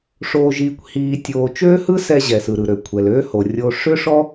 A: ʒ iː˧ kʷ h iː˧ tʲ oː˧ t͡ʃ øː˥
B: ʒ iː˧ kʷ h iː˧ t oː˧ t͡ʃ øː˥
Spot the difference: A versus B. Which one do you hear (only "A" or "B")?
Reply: A